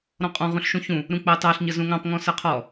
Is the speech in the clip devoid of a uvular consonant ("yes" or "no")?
no